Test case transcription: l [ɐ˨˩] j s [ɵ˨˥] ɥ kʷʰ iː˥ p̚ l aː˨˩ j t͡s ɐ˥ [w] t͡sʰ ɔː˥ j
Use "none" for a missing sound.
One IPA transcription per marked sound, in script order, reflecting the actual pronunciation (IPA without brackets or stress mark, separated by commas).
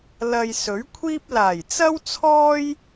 ɐ˧, ɵ˨˥, w